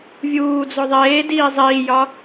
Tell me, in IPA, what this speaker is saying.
vʲuːd͡zo ðˤeːdiː zˤiːjɒ

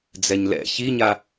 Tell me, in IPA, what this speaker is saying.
d͡zɛɲlɛ̰ çiɲa

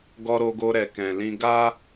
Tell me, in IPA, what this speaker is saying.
ɡɔ˧ɾo˧ɡo˧ ɾɛ˨kɛ̃˨ lĩ˧ɡa˦

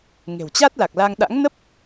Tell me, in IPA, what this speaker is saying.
ŋe̤˨˩wt͡ɕa˦˥t̚la˨˩k̚la˧ŋ ɗa̰˧˥ŋnə˦˥p̚

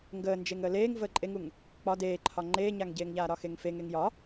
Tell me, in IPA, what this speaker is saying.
ŋɡəːnd͡ʒeŋ əːleːŋ vəːǃʼeŋuŋ | k͡pɒ deːǃʰɒ ŋ͡ǃeːɲaŋɟeːŋʎaː ɾɒxeŋfeŋ eŋjɒ

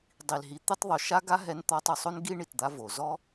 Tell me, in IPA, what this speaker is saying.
dˤi˨lɦi˨ t̪i˧tˤðˤo˨ ʃa˦ ɡa˦ ɦɛ˧nt̪ɔ˧tˤ ə˞˨sˤo˦nɡi˦ ɳi˨td̪a˧ vo˨zɔ˦

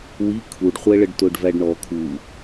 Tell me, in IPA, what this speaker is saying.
wi kʰuɖχʷɛɭəɖ tʊɖvæɖɳɔ kʰu

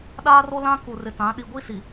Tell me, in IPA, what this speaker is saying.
ɗaː˦ro˦lã˦ ku˨rɪ˨tã˨˦ ɗi˨ɡʷi˦ si˨

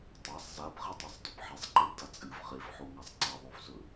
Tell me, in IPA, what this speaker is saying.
tˤasˤ zabχitˤesˤdɵb ħesˤǃebda t͡sʼɨv χefħoŋasˤ ǀɐðˤovzɵ

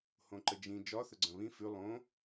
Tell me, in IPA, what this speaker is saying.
hõǃəd͡ʒĩ d͡ʒɒθəɡ͡ǀɐ̃ βĩ fʉ lˠõ

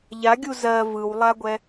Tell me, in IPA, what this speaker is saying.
ʎaɡʲu zɜ vɯwlˠaɡʷɛ

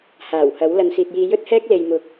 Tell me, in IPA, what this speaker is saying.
haː˨˩whɐ˨˥w lɐ˨˧nsiː˨t̚jiː˧ jɵ˥t̚hɛː˥k̚ le˨jmʊ˨˥k̚

